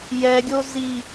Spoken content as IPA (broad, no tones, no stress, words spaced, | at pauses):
jɛɡʲo zi